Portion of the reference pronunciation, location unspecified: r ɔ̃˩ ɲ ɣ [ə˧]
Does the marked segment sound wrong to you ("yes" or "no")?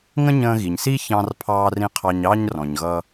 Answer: yes